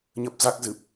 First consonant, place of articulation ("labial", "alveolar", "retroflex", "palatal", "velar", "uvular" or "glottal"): palatal